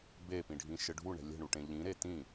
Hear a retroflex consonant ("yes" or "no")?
yes